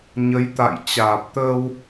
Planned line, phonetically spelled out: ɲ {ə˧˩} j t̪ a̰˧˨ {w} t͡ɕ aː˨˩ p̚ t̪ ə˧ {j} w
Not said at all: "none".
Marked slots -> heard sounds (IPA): ə˨˦, j, none

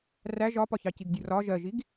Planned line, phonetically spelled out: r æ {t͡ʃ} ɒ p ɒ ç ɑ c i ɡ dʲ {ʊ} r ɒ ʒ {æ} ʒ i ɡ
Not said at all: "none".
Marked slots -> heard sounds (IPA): ʒ, ʊ, ɜ

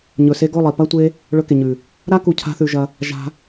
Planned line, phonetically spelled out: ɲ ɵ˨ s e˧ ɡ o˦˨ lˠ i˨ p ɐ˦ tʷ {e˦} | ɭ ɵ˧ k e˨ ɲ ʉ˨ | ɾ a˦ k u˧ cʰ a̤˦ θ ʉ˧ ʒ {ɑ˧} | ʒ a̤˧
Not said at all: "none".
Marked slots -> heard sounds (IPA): e˦, ɐ˧

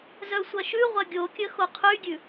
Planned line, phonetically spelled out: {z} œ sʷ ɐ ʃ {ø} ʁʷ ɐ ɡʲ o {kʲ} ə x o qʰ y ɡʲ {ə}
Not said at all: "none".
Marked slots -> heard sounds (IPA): z, ʉ, kʲ, ʉ

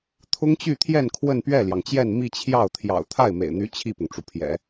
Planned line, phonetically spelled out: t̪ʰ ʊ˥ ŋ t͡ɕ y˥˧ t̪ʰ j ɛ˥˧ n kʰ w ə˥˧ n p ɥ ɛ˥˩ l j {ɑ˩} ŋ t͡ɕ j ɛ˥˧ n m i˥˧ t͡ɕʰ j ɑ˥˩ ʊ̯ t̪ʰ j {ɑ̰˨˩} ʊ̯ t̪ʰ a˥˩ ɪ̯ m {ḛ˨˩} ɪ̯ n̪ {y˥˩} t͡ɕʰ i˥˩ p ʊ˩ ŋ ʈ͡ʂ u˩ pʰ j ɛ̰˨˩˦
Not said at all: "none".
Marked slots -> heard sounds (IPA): ɑ˩, ɑ̰˨˩, ḛ˨˩, y˧˥

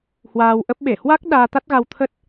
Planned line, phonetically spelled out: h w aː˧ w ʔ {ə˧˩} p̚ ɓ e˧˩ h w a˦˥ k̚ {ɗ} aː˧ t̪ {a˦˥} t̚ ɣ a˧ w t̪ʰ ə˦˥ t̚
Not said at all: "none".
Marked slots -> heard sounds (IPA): ə˦˥, ɗ, a˦˥

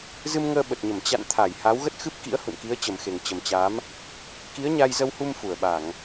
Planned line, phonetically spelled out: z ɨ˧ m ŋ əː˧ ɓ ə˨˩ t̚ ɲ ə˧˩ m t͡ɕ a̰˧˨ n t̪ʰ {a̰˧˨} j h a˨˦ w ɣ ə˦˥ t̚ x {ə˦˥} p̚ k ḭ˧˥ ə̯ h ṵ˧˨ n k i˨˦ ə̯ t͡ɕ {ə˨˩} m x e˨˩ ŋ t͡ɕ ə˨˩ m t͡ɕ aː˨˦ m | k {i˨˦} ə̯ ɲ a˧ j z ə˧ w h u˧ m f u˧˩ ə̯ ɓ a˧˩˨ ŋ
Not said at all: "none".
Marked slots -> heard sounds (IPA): a˧˩, ɨ˦˥, ə˨˩, i˨˦

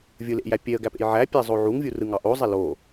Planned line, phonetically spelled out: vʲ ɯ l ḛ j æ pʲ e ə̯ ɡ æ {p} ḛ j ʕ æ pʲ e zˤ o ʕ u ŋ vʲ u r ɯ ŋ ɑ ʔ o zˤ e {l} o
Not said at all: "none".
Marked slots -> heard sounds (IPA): p, l

